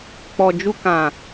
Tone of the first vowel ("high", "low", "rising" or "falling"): low